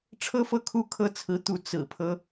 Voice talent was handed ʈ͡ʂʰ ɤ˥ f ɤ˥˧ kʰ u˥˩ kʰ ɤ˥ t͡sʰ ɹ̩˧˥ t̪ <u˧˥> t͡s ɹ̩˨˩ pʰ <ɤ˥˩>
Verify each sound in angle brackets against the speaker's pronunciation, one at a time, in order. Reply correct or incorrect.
correct, incorrect

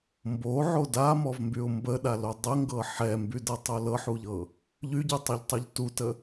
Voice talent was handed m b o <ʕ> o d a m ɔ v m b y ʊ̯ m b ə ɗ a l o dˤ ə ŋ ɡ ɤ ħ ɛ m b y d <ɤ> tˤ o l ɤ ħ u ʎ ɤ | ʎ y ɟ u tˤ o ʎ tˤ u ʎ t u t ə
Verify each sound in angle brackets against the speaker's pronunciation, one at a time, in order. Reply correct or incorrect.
correct, correct

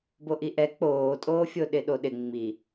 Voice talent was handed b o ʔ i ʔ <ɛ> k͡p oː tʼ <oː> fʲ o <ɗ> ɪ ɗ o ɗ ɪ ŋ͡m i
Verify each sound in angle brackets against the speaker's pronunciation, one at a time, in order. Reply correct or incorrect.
correct, correct, correct

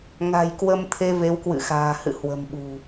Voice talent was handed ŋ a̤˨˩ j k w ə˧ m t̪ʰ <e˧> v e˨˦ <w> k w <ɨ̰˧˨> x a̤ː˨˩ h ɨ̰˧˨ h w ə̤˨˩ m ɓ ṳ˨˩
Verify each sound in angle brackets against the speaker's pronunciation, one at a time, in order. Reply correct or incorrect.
correct, correct, correct

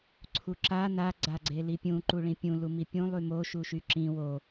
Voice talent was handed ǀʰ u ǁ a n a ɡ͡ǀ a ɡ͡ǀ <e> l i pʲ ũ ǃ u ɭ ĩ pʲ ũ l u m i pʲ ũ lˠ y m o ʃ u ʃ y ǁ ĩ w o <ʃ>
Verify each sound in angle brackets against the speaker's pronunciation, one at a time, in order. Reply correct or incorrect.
correct, incorrect

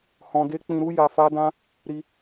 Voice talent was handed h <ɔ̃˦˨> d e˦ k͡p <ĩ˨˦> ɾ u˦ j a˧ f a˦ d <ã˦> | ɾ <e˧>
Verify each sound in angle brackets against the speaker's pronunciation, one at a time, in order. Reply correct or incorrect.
incorrect, incorrect, correct, incorrect

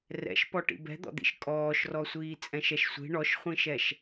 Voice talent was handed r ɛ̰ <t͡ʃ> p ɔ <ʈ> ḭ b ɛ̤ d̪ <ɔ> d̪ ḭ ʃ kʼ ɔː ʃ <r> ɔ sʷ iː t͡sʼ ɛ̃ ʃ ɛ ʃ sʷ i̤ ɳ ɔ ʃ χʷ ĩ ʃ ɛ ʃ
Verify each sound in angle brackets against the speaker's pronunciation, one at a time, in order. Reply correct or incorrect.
incorrect, correct, incorrect, correct

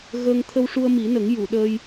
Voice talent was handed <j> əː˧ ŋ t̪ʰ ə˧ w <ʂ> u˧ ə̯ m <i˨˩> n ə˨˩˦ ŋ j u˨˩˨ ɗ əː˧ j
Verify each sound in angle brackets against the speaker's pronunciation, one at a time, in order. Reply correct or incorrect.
incorrect, correct, incorrect

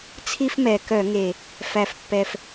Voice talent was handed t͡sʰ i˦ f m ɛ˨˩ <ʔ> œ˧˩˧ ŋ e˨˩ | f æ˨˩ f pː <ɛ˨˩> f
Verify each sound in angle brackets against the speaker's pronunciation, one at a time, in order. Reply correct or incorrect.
incorrect, correct

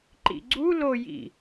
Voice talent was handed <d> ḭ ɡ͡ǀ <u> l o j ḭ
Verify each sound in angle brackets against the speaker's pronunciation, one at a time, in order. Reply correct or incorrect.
incorrect, correct

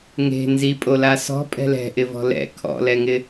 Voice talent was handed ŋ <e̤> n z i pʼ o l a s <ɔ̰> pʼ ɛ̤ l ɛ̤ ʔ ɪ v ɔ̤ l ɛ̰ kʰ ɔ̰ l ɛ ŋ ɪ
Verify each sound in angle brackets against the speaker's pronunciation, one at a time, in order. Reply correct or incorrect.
correct, incorrect

